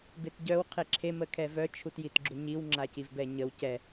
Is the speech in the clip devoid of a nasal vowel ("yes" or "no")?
yes